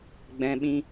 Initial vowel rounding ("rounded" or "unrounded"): unrounded